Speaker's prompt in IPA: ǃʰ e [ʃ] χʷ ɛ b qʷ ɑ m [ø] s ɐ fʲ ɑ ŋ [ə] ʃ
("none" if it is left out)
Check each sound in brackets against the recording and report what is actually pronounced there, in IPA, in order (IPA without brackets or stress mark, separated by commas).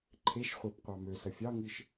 ʃ, ø, ɨ